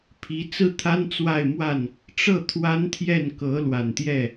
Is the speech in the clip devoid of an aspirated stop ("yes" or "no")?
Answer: no